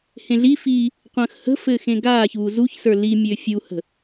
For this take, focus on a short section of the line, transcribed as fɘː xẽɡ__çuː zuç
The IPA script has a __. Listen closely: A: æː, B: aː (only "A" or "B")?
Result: B